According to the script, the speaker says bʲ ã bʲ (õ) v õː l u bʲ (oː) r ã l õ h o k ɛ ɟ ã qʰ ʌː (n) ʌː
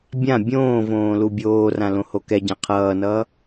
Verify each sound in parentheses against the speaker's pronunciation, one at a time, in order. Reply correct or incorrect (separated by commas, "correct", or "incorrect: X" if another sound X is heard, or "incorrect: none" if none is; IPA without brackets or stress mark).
incorrect: õː, correct, correct